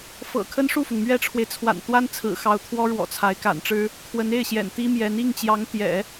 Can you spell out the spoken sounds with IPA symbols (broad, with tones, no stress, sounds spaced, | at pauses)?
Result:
f ɤ̰˨˩ kʰ ə˥ n ʂ u˥˩ f ʊ˩ ŋ m ɥ ɛ˥ ʈ͡ʂʰ w e˨ ɪ̯ t͡sʰ w a̰˨˩ n t̪ w a˥ n t͡sʰ ɹ̩˨˩ x ɑ˧˥ ʊ̯ t̪ʰ w ɔ˥ ɻ w ɔ̰˨˩ t͡sʰ a˧˥ ɪ̯ k a̰˨˩ n ʈ͡ʂ ɻ̩˥ | kʰ w ə˧˥ n e˥˩ ɪ̯ ɕ j ɛ̰˨˩ n t̪ i˥ m j ɛ˧˥ n i˥˩ ŋ t͡ɕ j ɑ˧˥ ŋ t̪ j ɛ̰˨˩˦